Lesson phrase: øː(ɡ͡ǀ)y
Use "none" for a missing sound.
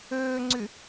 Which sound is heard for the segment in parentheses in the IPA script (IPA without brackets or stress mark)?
ŋ͡ǀ